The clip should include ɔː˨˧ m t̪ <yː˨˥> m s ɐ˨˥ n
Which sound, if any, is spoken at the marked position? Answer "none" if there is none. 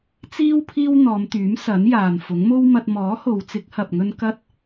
yː˨˥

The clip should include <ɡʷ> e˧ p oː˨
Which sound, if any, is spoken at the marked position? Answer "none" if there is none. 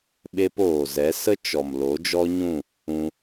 ɓ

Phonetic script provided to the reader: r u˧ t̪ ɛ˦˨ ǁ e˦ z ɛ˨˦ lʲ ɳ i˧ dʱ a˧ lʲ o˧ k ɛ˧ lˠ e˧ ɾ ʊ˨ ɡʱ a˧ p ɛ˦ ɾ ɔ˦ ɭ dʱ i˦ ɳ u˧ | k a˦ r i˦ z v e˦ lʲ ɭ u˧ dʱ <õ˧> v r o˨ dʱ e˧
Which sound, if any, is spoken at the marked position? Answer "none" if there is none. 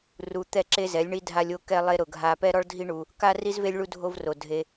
o˧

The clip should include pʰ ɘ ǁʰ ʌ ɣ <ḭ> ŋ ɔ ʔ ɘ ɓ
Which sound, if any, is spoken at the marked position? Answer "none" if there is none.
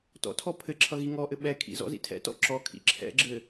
i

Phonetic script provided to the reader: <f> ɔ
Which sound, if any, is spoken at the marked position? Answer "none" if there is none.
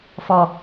f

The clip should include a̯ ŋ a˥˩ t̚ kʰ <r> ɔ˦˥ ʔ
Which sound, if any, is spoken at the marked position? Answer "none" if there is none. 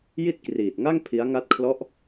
l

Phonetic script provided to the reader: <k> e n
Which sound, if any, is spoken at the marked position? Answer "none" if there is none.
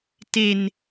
t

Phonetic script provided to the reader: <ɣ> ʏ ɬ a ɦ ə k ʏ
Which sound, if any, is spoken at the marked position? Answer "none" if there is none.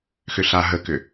x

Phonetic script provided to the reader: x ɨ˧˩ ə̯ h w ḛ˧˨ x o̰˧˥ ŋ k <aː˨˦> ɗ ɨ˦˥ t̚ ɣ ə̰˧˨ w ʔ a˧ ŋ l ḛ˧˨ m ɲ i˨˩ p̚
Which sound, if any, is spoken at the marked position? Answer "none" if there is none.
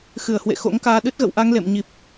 aː˧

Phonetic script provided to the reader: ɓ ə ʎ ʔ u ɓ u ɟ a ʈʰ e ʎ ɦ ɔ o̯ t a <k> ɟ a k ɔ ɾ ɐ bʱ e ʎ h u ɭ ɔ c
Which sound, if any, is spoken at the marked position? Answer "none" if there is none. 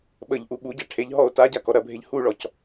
none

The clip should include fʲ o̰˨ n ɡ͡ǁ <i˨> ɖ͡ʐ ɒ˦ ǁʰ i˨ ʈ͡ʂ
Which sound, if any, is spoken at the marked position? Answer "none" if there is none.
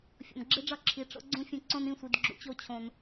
i˦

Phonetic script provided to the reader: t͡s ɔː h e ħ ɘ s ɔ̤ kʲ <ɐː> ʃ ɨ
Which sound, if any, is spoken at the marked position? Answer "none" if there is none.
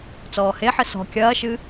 ɐː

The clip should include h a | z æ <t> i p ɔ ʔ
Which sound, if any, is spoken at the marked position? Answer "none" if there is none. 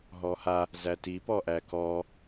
t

